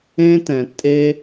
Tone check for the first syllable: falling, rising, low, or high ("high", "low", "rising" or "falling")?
high